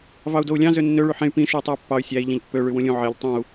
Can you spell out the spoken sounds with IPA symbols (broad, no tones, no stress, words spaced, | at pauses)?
vɑu̯dou̯lʲɑ̃ zønːø ɭyħẽy̯ pĩ ʃuy̯tˤuy̯pːɑy̯ sʲæi̯ ʎẽʎpːø ɭywũlʲũ ʕeʎ tˤõu̯